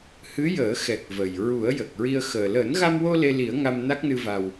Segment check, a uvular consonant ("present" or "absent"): absent